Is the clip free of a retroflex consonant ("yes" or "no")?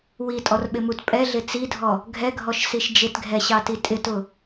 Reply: yes